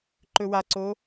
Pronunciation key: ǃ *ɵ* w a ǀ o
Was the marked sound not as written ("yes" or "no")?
no